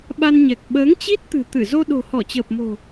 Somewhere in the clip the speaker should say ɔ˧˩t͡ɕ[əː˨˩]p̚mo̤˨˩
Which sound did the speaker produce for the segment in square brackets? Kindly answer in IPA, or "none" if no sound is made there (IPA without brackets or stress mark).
əː˨˩